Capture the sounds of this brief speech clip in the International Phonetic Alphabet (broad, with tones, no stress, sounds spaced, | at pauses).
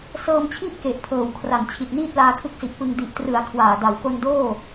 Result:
s ɤː˧ m t͡ɕʰ i˥˩ ʔ k e˨˩ ʔ pʰ ɤː˨˩ w kʰ r a˩˦ n t͡ɕʰ i˨˩ t̚ n iː˥˩ t̚ l aː˧ kʰ ɯ˦˥ k̚ s i˨˩ ʔ p ɯ˧ ŋ d i˨˩ ʔ t r ɯ˩˦ a̯ kʰ w aː˨˩ d a˩˦ w k o˧ n d oː˥˩